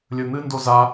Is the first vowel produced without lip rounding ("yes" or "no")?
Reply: no